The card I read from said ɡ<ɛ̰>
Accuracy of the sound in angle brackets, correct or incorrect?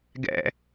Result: correct